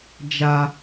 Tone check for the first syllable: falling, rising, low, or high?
high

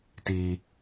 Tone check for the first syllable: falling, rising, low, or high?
low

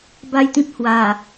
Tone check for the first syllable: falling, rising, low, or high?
falling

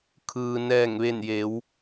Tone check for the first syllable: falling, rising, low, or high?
low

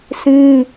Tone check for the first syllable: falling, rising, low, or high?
high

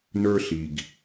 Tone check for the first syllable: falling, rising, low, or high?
high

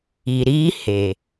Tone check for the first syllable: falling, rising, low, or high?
low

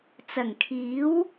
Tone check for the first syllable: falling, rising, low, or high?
low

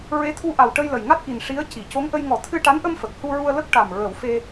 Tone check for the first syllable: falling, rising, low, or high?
rising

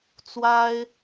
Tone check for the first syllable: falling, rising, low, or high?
high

